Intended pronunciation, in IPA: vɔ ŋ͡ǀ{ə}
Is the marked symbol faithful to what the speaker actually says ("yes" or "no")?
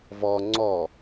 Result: no